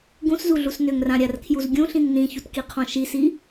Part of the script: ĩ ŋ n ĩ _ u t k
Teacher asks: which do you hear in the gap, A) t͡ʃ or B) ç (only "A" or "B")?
B